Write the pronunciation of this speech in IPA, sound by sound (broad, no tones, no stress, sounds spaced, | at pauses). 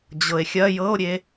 d͡ʑ ɤ e̯ xʲ ɐ j ɤ o̯ ɾʲ e